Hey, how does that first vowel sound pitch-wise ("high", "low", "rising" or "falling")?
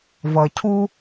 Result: low